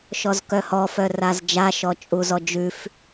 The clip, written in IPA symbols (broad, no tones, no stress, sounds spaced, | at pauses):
ʃ ɔ z k œ h ɔ f œ r a z d͡ʒ a ʃ ɔ t͡ʃʼ u z ɔ d͡ʒ ʉ f